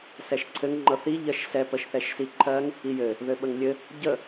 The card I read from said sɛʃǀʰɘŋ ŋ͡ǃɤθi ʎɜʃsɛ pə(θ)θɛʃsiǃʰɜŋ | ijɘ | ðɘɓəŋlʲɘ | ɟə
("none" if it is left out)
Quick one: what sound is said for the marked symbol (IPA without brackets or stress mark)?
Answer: ʃ